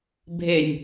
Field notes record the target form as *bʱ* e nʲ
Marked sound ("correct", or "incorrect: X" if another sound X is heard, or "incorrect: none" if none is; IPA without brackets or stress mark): correct